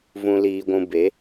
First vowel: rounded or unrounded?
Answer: rounded